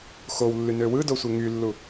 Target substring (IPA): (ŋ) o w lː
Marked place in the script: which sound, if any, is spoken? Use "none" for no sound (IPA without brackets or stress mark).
x